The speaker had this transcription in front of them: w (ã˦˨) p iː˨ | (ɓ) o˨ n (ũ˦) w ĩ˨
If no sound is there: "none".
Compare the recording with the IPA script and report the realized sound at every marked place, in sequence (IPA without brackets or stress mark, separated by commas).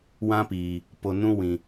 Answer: ã˦, p, ũ˦